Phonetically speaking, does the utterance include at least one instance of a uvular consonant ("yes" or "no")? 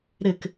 no